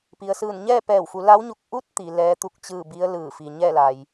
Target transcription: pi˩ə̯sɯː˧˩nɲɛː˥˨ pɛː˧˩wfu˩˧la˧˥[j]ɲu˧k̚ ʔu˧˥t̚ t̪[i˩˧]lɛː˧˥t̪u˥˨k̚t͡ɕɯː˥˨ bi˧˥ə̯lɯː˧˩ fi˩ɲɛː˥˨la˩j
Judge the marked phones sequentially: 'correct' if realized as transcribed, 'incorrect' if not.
incorrect, correct

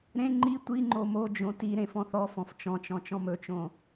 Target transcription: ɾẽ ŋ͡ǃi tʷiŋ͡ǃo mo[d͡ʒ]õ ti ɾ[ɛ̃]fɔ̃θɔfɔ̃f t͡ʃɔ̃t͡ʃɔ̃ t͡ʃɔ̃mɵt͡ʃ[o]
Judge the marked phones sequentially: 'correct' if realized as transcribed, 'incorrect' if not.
correct, incorrect, incorrect

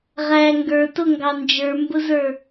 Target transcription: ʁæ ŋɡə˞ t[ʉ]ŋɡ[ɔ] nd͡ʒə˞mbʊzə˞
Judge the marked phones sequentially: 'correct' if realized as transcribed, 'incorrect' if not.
incorrect, incorrect

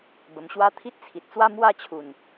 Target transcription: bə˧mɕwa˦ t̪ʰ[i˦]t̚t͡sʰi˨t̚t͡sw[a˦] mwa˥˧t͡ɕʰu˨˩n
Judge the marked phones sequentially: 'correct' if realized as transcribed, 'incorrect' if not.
correct, correct

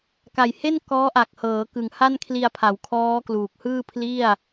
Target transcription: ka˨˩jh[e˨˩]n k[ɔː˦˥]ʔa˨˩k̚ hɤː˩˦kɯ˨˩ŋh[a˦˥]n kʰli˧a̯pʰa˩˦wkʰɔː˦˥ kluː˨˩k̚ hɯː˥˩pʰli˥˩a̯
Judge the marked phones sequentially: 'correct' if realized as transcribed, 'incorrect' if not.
incorrect, correct, incorrect

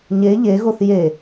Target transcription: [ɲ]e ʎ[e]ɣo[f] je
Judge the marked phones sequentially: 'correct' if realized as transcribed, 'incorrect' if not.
correct, correct, incorrect

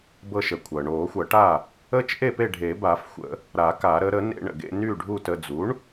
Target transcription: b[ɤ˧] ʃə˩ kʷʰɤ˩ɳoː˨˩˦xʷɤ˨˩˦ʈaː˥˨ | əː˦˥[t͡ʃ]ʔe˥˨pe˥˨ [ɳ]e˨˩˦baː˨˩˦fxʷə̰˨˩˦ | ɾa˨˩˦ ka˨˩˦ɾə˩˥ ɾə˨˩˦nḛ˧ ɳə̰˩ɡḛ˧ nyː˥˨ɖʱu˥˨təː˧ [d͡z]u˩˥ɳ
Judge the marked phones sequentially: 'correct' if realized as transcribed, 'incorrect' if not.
correct, correct, incorrect, correct

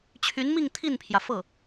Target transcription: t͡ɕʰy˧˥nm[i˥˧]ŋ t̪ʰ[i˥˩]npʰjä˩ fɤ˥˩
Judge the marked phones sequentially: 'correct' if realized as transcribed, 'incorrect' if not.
correct, correct

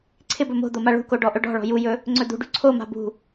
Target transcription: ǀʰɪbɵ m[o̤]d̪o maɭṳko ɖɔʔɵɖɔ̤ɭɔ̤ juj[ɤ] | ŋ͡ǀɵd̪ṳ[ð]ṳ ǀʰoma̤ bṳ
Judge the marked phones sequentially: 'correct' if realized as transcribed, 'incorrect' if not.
correct, incorrect, incorrect

